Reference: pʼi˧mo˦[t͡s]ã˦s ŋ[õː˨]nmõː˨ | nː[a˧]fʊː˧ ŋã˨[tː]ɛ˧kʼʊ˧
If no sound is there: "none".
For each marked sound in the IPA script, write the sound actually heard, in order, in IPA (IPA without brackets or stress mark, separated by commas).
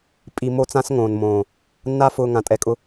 t͡s, õː˨, a˦, tʼ